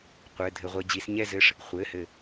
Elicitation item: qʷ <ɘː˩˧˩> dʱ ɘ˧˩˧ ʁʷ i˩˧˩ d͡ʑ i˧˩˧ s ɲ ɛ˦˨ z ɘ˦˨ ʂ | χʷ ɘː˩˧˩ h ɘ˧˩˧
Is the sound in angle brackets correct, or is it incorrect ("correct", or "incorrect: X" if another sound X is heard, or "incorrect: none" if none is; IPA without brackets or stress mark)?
correct